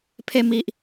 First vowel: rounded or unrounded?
unrounded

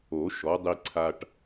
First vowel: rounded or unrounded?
rounded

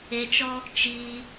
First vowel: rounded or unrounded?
unrounded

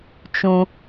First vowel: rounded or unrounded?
rounded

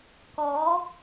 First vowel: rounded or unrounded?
rounded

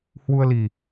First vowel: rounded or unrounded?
rounded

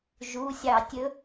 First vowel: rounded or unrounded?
rounded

